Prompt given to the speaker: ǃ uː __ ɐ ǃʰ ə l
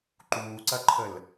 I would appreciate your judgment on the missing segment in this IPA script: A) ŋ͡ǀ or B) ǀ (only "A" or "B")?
B